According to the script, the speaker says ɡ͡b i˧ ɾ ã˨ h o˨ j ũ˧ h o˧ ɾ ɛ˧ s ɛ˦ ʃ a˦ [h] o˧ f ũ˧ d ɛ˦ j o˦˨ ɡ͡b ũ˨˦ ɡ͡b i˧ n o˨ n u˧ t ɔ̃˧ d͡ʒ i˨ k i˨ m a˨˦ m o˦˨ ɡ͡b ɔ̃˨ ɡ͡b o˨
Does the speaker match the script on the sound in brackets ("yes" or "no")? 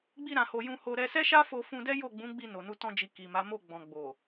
no